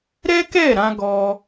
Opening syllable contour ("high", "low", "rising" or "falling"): high